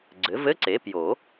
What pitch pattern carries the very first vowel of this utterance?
rising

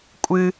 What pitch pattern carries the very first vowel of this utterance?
low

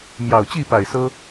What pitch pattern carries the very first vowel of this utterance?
low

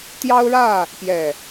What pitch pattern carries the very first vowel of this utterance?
high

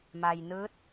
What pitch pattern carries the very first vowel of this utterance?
low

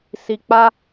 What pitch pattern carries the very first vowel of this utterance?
low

